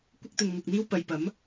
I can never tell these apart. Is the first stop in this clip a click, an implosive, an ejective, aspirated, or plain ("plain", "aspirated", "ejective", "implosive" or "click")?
plain